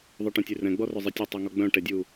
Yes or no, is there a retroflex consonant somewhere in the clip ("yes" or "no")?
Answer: yes